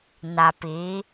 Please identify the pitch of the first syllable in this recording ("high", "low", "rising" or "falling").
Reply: low